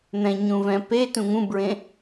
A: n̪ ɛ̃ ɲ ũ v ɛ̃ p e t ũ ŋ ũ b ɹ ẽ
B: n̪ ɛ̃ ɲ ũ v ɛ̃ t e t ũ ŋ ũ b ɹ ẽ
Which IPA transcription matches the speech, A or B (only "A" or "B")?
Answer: A